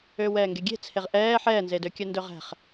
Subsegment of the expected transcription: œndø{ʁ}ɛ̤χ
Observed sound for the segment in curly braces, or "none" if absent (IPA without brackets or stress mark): ʁ